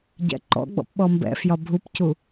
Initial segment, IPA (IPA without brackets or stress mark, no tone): ɟ